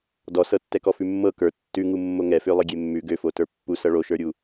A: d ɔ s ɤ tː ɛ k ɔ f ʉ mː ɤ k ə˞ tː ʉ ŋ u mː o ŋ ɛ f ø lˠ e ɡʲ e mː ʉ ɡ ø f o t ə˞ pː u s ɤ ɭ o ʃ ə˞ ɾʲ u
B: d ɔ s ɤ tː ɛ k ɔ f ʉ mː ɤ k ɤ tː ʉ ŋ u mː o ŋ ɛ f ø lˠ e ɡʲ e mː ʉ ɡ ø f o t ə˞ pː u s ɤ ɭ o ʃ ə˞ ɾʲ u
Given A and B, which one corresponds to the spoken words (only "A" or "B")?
A